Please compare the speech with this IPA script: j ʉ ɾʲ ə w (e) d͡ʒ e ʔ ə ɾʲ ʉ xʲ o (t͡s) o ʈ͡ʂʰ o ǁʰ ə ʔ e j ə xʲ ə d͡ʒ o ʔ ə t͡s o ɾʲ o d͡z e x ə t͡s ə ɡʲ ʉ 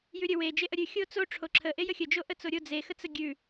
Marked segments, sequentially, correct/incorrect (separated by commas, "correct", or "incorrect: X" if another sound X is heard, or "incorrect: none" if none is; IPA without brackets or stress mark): correct, correct